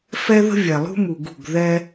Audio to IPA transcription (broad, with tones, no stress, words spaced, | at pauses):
fɛ˦ðə̤˦ vʲɛ˨lˠṳ˦ mu˨ɡṳ˦˨ɡ ðɛ˦